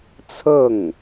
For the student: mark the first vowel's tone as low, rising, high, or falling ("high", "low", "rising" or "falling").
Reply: falling